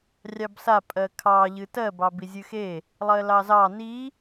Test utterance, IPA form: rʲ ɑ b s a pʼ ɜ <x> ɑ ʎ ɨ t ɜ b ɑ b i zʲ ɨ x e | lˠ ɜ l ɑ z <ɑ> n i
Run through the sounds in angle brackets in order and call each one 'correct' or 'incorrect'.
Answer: incorrect, correct

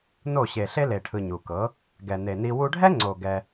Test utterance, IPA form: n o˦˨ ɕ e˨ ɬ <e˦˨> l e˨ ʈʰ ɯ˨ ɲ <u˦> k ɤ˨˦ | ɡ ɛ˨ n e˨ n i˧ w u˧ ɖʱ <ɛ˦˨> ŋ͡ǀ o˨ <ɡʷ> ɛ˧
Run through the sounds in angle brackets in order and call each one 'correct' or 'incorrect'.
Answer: incorrect, incorrect, incorrect, incorrect

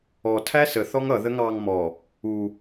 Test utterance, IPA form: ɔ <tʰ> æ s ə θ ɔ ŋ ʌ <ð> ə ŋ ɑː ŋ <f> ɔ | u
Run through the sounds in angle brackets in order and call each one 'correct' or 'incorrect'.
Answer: correct, correct, incorrect

